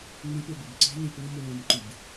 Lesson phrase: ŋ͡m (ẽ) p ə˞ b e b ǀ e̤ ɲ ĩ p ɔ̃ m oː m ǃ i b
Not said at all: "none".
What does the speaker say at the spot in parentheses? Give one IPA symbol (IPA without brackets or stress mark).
ĩ